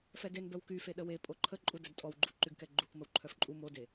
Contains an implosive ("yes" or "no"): yes